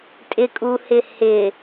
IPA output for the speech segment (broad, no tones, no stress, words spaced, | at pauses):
tʼɪkʼuhɪ hɪ